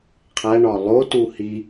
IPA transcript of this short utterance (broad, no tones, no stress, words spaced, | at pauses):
qʰæɳɒ lˠo tuhi